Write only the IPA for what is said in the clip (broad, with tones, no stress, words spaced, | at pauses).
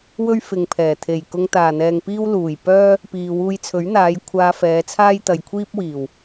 wɵ˥ɥfɪ˨ŋpʰɛː˨˩ t̪ʰe˨˩jkʊ˧ŋ t̪aː˨˩n̪ɛː˨ŋpiː˥w luː˨˩j pœː˥ | piː˨wuː˧jt͡sʰɵ˨˥ɥn̪aː˨˧j kʷʰaː˧fɛː˨˧t͡sʰaː˥j t̪ɐ˨jkʷʰiː˥p̚wiː˨˩w